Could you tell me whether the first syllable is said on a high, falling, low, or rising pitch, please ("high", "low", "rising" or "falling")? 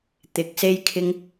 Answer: rising